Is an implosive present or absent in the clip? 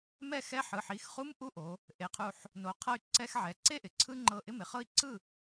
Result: absent